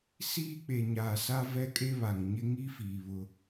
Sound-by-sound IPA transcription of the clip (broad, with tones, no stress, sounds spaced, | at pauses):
s iː˦ k͡p e˨ ɲ aː˨ s a˦ v ɛ˦ kʼ e˦ β a˨ ŋ ɲ ɪ˦ ŋ i˦ f iː˨ β ʊ˦